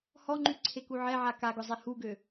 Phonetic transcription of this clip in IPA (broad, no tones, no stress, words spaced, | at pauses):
hɔŋ͡ǃy ǀʰekuʕɛʕa kaɡʊzˤe huɡø